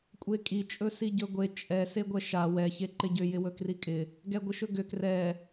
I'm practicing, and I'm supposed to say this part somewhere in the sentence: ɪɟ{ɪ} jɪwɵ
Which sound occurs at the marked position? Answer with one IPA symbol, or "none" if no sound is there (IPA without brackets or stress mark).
ʏ